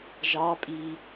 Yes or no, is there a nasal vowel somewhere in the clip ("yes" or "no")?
no